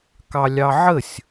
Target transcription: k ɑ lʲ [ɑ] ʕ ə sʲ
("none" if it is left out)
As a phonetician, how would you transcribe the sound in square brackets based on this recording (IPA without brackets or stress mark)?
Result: ɑ